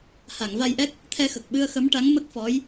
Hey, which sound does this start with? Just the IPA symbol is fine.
h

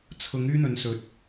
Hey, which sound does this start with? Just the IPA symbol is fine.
t͡sʰ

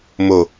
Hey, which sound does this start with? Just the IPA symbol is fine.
m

